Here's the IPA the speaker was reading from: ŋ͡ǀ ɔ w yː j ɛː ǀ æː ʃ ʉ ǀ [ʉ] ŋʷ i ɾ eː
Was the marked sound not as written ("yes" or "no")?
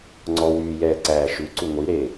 no